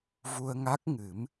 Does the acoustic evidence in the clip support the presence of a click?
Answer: no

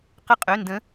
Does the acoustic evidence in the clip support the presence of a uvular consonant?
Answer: yes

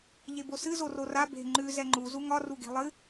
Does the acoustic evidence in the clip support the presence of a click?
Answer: yes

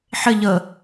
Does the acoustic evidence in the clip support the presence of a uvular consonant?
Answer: no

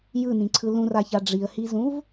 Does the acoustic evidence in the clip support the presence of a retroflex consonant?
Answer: yes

